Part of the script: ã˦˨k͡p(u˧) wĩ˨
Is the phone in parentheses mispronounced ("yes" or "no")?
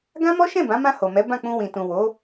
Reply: yes